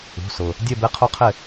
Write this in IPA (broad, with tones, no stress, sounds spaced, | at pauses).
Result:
ṳ˩˧˩ s ʊ˩ | dʲ ɛ˦˨ b e˧˥ qʰ o˧˥ qʰ ɪ˦˨